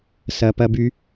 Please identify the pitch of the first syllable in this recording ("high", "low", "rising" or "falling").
low